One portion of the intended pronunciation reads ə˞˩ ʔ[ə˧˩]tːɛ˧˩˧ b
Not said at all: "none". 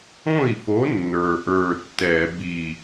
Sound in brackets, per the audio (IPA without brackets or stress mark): ə˞˧˩